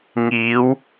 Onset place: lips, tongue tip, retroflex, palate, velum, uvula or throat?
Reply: velum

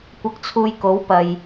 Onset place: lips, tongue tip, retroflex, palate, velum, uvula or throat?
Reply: velum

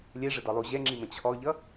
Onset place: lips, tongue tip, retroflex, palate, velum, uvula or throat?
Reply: tongue tip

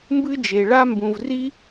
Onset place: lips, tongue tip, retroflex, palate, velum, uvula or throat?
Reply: lips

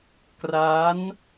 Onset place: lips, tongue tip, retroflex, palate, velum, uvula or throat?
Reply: velum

